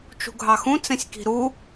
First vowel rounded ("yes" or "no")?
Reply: yes